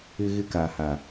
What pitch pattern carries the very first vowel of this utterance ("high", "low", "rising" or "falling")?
high